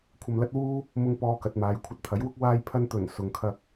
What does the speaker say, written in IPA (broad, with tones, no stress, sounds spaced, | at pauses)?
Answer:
kʷʰ ɐ˧ m l ɐ˥ t̚ w uː˥ | m ʊ˧ ŋ p ɔː˧ k ɐ˨ t̚ m aː˨ j kʷʰ ɐ˧ t̚ t̪ʰ ɐ˨˥ j w ʊ˥ k̚ w aː˧ j pʰ ɐ˧ n t̪ ɵ˨˩ n s ʊ˨ ŋ kʰ ɐ˧ k̚